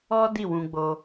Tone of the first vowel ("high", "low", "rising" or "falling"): high